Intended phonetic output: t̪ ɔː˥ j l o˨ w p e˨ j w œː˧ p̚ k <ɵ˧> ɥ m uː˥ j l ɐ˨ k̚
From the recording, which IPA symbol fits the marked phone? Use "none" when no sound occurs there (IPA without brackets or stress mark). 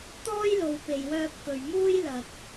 ɵ˨